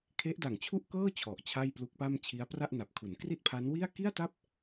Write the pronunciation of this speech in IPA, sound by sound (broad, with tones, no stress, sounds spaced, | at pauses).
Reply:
kʰ e˦˥ ʔ d a˨˩ ŋ t͡ɕʰ u˥˩ ʔ k ɤː˥˩ t͡ɕʰ ɔ˨˩ ʔ t͡ɕʰ a˥˩ j p l u˦˥ k̚ p a˥˩ m t͡ɕʰ i˦˥ a̯ p r a˥˩ ʔ n a˨˩ p̚ kʰ u˩˦ n k r i˥˩ t̚ pʰ a˦˥ n w i˥˩ a̯ k i˥˩ a̯ t a˥˩ p̚